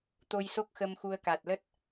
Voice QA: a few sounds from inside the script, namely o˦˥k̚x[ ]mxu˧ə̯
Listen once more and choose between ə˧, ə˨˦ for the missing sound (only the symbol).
ə˧